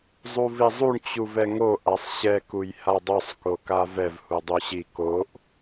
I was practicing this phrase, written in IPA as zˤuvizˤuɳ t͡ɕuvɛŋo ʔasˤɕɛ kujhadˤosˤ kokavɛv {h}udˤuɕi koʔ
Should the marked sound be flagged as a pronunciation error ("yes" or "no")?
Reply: no